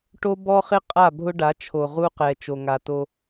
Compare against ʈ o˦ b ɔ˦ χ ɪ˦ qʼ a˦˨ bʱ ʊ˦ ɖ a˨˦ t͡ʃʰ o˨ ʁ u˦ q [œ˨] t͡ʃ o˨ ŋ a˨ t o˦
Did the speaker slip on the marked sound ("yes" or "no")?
yes